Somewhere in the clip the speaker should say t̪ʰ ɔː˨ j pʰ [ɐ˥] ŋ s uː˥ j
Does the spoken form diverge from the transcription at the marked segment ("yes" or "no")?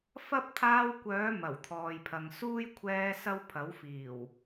yes